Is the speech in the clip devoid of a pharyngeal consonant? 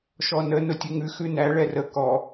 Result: yes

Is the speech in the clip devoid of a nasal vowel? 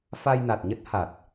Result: yes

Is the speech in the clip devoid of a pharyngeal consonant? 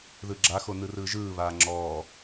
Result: yes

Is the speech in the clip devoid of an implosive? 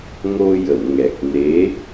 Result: yes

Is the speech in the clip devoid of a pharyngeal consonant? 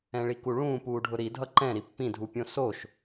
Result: yes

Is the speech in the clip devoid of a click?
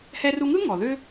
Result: yes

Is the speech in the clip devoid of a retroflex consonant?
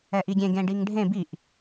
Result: no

